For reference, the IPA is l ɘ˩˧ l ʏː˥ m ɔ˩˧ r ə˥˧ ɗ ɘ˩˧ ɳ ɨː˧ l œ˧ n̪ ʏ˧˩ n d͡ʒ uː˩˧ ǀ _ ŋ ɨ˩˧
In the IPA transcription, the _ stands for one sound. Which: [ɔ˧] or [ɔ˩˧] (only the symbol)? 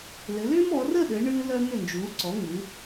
ɔ˩˧